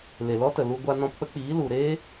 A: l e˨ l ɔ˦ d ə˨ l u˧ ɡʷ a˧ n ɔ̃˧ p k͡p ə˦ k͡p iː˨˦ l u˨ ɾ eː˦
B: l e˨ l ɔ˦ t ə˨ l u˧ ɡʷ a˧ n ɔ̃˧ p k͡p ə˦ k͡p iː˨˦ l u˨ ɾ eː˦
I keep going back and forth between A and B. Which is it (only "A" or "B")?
B